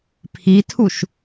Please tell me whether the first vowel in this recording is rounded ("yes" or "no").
no